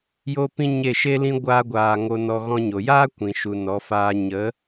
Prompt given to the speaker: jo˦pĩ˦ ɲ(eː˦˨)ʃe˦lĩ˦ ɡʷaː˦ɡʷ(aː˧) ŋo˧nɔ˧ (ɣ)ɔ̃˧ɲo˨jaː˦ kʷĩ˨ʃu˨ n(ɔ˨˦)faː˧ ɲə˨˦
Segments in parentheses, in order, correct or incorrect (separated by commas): incorrect, correct, correct, correct